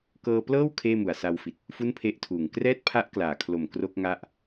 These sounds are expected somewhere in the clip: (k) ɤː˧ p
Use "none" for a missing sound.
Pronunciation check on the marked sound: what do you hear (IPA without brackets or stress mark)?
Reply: k